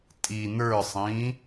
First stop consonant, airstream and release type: ejective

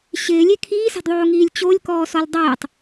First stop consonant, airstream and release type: aspirated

